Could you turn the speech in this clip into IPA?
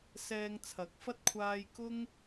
sɛː˧ŋt͡sʰɐ˨˥k̚fɐ˥t̚kʷʰaː˧j kʊ˥ŋ

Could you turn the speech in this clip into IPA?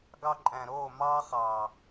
ɡɑ˧ǃʼæ̃˨ ɾo˦˨mɑ˦ χɑ˨

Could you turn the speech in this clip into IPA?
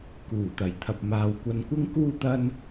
kuː˨˩t̪ɐ˨˩jt̪ʰɐ˨p̚ maː˨wkʷɐ˧n kʷɪ˥ŋkuː˥ t̪ɐ˥n

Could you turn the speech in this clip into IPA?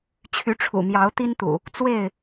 t͡ɕʰy˨˦ʈ͡ʂʰṵ˨˩ mjɑ˨˦ʊ̯ t̪i˦nt̪ṵ˨˩ | t͡swe˥˨ɪ̯

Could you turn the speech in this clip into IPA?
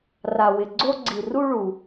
ra˩wɪ˩ ɡ͡ǀo˧ɡ͡ǀi˩ru˧ɭu˩

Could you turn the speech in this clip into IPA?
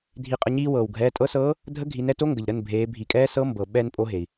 dʱi˩qʼə˩˧˩ɲiː˧ wɤː˩w ɡʱɛː˩˧˩tʼɤ˧˥sɤː˧˥ | dʱə˧˥ ɡʱi˩˧nɛ˧to˧˥ ŋɡə˩ʎɾə˩˧˩nbʱeː˩˧ bʱi˩˧kʼɛː˧˥ sɤ˧˥ mbɤ˩ ɓɛ˧n pʼo˧˥ɦe˩i̯

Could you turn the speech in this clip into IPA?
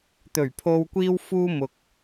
t̪ɵ˨˩ɥpʰo˧w kʷiː˧wfuː˧ mʊ˨k̚

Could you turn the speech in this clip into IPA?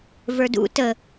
və˞dṵ tə

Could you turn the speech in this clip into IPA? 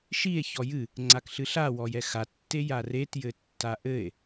ʃie̯ çɔjɨ | ŋ͡ǀakɬɨɬa wɔjɛxa tːejaret jɘtːaʔɘe̯

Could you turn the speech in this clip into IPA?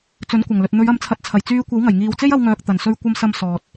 t͡sɵ˨˥nkʷɐ˨˩ŋlɵ˨t̚ n̪ɵ˨˧ɥɐ˨˥mt͡sʰɐ˨t̚t͡sʰɐ˨˩j t͡syː˧kʷɐ˨˥wŋɐ˨˩j ŋiː˨wt͡se˥jɐ˧wŋœː˨k̚ t̪ɐ˨˩nsɵ˧ɥ kʷɐ˨˧m sɐ˨m sɔː˨t̚

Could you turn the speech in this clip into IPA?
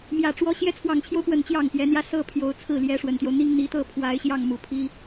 mjä˨˩ʈ͡ʂwɔ˧˥ ɕjɛ˧˥t͡sʰwɑ˨˩ŋt͡ɕʰjo˦ʊ̯pwə˨˩n t͡ɕjɑ˥˩ŋpjɛ˧˥n̪jä˥˧ sɤ˥˩pʰjo˧˥ʊ̯ t͡sʰɹ̩˥˩ljɛ˧˥ ʂwə˨˩nt̪jo˦ʊ̯ n̪i˥ŋ n̪i˧˥t̪ɤ˥˩ pʰwa˧˥ɪ̯ɕjɑ˥˩ŋ mu˨˩pʰi˥

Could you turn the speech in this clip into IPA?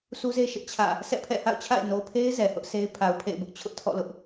sʰu˦ze˦ ʃɪ˦ʔt͡ɕʰä̰˦˨ | sɛ̰˦˨pʰɛ̰˦˨ha̰˦˨ʊ̯t͡ɕʰa̰˦˨ɪ̯ no˨pʰe˦ɪ̯ zɛ˨hʊ˦ʔse˦ɪ̯ pʰa˨ʊ̯pʰḛ˦˨ɪ̯bʊ˦ʔ t͡ɕʰʊ˦ʔtʰɔ̰˦˨ lʊ˦ʔ

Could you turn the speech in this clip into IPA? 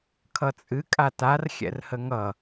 kʰʌt͡sʼɨ kʼatar xʲɛ̰rhəŋʌ

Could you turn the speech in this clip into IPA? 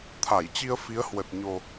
t̪ʰa˧˩jt͡ɕi˧ə̯fi˨˦ə̯ hwə˨˩t̚ɲo˨˩

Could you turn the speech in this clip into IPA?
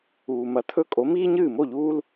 uː˩mɐ˩˥t̪ʰɵ˧ kʼo˩˥miː˥ ɲɨː˥˩mo˥˩ʎuː˥l

